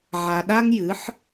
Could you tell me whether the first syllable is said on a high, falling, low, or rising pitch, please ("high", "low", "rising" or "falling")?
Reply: low